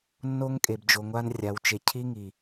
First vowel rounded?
yes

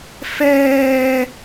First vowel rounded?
no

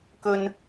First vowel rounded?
yes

